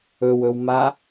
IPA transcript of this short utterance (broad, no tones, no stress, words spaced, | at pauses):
ɵwɵwma